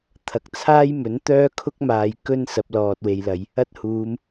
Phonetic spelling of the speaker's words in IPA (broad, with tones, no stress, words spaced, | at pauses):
t̪ʰɐ˨k̚t͡sʰaː˥jmɵ˨˥nt̪œː˥ kʰʊ˥k̚maː˨j kɵ˥n sɐ˨˥p̚lɔː˨t̚we˨jlɐ˨˧j | ɐ˥t̚huː˨˧m